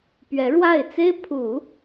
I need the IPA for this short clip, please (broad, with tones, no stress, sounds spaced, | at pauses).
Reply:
p ɥ ɛ˧˥ ɻ w a˥˩ ɪ̯ t͡s e˥ ɪ̯ pʰ u˨˩˦